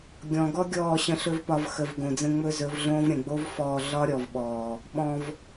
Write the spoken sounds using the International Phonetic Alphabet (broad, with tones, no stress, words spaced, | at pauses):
ɡʲɔ̃˨ɡɔ˦ ɡʲɔː˦˨ɕə̃˧ɬɵ˦vpɒ˧v xə˨v ɡõ˨d͡zə̃˧ ŋ͡mɵ˦zɵ˨˦vɮõː˦v ɾʲə̃˨ɡ͡bo˦v fɔː˧ ɮɒ˦ɾʲɔ˨vɓɔː˨ | ɓɔ̃˧v